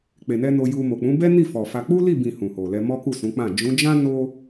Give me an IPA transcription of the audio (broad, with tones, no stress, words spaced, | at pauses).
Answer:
k͡pe˨nɛ˧ no˧ju˧ mo˨k͡pũ˨˦bɛ˦ ni˦˨fɔ˨fa˧ k͡pu˦li˦˨bĩ˨ hũ˨ho˨lɛ˧ mɔ˦ku˦˨sũ˨˦k͡pã˦˨ d͡ʒũ˨˦d͡ʒã˦ no˦